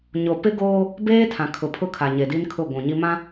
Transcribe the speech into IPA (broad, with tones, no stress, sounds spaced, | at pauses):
ɲ o˨ p ɪ˦ ɡ oː˦ | b eː˦ tʰ ã˨ kʰ ʊ˨ pʰ ʊ˦ kʰ a˨ ɲ e˨ d i˦ n kʰ ʊ˦˨ ɡʷ ũ˨ ɲ i˦ m ã˦